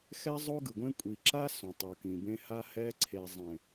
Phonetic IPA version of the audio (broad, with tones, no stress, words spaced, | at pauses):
xɛ˦zˤo˦ɡɯ˨ɡʷẽ˦ kʷʼi˨ ǁa˦ sõ˨tˤu˨kĩ˨bẽ˦ ha˦hɛ˦ ǀʰe˨zˤẽ˨